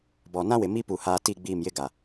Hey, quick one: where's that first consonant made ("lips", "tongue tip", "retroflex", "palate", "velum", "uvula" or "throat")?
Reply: lips